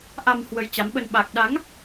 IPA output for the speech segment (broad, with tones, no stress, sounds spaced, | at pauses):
ʔ a˧ m h w ə˨˦ j t͡ɕ a˨˦ m ɓ ə˧ n ɓ a˨˩ k̚ ɗ a˨˦ ŋ